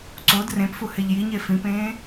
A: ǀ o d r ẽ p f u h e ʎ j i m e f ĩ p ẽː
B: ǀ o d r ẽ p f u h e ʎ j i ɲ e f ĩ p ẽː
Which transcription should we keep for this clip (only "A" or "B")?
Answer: B